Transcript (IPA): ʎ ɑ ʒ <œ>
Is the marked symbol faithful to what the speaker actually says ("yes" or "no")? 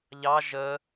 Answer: no